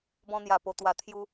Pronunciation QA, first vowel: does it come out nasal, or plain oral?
nasal